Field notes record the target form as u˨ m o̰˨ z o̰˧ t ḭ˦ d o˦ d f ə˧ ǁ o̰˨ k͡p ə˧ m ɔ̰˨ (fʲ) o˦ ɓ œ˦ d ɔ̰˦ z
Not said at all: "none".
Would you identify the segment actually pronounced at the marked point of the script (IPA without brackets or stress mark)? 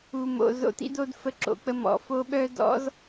f